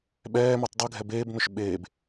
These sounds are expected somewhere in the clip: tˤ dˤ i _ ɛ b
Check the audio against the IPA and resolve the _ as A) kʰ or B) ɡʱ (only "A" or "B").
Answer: B